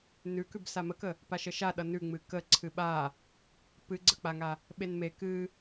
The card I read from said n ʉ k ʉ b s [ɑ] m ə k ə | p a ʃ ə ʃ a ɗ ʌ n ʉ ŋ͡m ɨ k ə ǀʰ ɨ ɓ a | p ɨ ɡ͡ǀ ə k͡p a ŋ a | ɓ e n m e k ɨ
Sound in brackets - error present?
yes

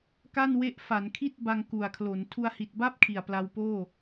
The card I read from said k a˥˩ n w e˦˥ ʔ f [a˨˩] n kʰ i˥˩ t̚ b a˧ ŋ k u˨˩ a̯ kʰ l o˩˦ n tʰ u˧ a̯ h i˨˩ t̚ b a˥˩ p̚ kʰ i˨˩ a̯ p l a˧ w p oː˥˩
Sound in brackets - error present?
yes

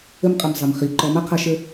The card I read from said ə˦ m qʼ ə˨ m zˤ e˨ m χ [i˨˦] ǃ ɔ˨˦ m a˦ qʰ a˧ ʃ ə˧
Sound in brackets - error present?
no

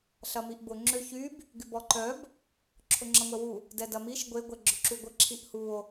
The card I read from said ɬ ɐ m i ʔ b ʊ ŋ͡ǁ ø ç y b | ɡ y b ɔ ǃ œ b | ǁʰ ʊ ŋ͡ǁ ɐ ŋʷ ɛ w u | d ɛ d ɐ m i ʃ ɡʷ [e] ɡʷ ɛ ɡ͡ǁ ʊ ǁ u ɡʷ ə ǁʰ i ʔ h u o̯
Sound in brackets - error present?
no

